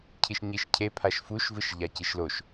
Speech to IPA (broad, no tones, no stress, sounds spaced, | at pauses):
cʰ i ʃ ɲ i ʃ cʰ e pʰ a ʃ f u ʃ v ɯ ʃ ʎ a c i ʃ l o ʃ